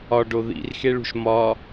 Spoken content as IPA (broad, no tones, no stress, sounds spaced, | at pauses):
ɒ ɖ o ð ḭ r x e ɭ ṳ ʃ m ɒ